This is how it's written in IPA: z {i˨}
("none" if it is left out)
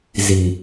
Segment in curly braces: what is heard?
i˨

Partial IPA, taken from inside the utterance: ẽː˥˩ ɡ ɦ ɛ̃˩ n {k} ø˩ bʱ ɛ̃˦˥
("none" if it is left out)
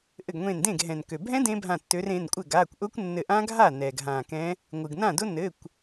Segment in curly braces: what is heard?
k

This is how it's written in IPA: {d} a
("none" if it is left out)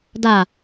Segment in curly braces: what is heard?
d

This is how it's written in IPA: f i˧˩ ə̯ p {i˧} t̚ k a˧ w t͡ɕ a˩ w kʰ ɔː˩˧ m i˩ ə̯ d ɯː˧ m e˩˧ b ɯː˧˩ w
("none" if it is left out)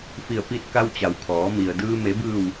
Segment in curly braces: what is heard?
i˧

